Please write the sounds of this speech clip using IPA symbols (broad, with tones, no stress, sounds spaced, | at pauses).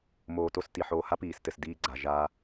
m oː˨ t o˦˨ s t i˨ ħ oː˨ h a˦ p iː˨ s t ɘ˨ s d iː˦ ɡ͡ǀ a˨ ʒ a˦